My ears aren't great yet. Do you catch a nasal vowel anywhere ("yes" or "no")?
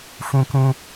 yes